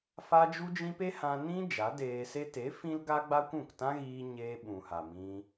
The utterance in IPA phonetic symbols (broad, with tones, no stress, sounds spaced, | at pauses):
f a˦ d͡ʒ u˦ d͡ʒ ĩ˦ p e˦ h ã˧ n ĩ˦ d͡ʒ a˨˦ d eː˧ s e˦ t e˨˦ f ĩ˦ l ɡ a˦ ɡ͡b a˦ kʷ ũ˦˨ k t ã˦ ɣ iː˧ ɲ eː˧ ɓ ũ˨ h a˨ m ĩ˧